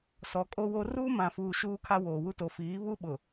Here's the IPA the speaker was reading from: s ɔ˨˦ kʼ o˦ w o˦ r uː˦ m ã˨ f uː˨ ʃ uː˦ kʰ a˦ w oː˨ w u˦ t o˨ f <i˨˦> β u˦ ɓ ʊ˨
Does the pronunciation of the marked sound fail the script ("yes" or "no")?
yes